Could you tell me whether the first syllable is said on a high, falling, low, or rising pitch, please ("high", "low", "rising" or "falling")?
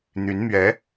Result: rising